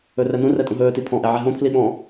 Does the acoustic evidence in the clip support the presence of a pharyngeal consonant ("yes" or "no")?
yes